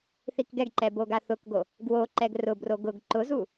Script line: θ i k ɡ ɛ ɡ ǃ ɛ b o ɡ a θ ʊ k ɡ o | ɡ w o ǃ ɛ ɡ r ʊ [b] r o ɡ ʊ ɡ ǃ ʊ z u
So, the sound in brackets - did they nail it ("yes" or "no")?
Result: yes